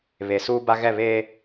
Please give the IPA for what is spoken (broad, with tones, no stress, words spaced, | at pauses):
βe˨suː˦ba˦ ɣɛ˦˨βeː˦